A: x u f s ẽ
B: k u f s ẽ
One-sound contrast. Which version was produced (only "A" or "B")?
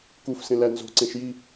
B